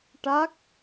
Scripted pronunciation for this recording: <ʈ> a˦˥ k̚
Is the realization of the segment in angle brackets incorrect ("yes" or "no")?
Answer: no